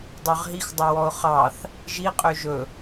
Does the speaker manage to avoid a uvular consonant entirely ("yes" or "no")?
no